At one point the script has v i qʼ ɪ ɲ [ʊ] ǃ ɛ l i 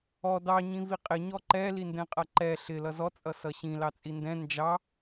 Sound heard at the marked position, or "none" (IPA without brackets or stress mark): ɔ